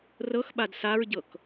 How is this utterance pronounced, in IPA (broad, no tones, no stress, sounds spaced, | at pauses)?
r ɤ x ɓ a d s a ɹ ɟ ɤ k